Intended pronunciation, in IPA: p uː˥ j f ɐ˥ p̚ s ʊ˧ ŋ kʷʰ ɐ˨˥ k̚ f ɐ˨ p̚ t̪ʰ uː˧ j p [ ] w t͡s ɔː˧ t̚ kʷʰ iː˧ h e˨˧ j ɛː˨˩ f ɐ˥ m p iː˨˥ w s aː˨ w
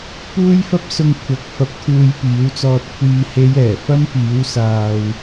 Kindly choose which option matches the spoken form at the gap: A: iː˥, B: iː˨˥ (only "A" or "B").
B